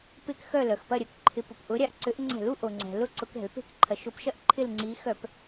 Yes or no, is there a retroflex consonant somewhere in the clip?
no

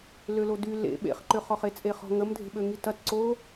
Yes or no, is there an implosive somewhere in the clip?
yes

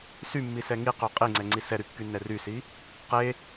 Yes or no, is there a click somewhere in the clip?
yes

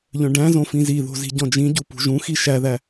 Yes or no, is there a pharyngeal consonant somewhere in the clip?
no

